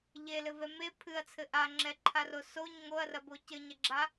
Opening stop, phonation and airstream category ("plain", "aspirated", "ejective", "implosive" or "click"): aspirated